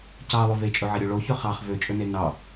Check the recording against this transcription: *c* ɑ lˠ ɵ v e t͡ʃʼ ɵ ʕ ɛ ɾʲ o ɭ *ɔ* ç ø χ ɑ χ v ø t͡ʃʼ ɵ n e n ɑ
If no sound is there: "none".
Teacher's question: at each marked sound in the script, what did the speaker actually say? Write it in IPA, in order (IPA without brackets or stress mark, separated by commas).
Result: c, o